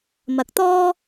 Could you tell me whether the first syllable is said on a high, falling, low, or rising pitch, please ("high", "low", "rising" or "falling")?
low